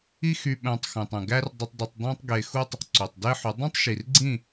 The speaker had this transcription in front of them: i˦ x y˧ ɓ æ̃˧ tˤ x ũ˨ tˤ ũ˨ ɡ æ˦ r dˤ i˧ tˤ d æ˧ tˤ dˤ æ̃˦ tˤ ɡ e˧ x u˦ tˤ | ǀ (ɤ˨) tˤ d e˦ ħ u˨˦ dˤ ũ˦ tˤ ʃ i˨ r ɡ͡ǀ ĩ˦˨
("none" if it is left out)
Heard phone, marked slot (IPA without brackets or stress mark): o˨